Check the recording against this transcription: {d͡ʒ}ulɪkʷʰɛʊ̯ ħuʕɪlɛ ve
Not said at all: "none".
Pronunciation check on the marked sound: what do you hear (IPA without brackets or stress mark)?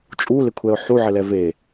t͡ʃʼ